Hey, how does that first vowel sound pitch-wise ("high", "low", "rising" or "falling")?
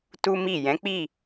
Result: high